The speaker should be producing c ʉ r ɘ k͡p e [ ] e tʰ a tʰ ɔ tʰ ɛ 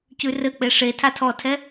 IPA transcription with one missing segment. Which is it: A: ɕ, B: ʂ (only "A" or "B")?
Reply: B